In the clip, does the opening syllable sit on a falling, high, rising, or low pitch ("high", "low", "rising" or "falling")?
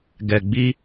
low